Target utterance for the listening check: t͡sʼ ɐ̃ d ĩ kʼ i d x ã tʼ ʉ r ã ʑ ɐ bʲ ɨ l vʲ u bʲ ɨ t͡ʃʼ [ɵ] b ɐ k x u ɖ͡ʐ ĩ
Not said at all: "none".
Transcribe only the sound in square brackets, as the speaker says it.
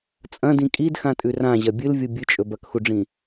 ɵ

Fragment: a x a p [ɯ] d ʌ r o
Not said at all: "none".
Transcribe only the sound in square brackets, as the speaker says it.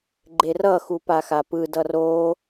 ɯ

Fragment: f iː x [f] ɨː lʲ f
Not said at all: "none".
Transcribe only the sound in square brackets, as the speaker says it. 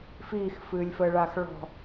f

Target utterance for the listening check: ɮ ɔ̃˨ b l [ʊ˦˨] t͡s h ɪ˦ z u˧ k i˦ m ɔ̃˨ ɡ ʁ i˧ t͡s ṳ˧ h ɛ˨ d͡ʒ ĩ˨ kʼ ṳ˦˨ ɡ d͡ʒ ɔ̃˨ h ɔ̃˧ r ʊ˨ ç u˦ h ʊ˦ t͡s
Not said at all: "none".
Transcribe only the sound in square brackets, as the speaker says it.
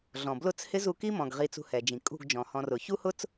ʊ˦˨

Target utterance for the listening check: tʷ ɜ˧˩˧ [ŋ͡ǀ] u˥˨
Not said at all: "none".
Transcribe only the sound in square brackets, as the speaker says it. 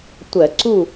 ǀ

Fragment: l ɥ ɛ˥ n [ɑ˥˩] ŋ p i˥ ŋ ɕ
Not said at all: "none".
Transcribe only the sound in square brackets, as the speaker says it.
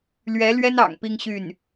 ɑ̰˨˩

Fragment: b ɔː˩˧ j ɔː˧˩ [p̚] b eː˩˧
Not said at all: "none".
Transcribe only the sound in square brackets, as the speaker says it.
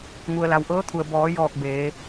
k̚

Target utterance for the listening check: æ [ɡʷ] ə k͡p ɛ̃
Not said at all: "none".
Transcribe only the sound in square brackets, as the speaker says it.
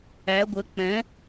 ɡʷ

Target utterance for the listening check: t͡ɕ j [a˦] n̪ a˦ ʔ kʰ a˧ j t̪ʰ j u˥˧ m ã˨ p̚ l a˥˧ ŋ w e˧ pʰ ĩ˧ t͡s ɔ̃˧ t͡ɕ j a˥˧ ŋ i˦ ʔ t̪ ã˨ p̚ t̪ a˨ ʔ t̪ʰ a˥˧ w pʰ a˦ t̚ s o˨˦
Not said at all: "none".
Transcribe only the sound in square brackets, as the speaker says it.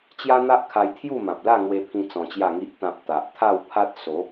a˦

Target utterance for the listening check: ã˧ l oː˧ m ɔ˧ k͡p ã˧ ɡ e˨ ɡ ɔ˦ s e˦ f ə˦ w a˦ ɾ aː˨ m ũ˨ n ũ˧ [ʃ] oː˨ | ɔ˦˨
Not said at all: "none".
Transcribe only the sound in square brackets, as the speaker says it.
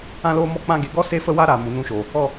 ʃ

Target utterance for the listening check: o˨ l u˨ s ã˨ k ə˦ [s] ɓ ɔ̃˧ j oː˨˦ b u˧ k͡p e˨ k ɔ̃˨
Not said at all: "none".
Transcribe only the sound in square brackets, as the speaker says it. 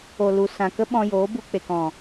none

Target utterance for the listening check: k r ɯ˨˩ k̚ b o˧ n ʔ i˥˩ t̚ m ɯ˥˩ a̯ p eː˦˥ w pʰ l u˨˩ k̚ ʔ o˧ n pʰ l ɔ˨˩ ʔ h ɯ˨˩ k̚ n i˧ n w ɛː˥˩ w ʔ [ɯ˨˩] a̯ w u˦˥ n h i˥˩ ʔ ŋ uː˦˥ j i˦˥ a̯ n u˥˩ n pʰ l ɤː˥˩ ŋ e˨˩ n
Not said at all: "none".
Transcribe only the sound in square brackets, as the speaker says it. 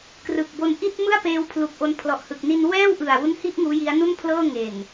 ɯ˨˩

